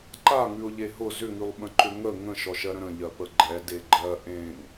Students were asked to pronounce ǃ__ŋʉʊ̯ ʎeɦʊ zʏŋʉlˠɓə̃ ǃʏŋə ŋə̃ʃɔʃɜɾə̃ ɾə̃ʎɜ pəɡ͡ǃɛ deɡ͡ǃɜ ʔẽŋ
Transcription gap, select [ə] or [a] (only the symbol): a